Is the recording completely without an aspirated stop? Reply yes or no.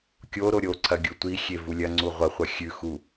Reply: no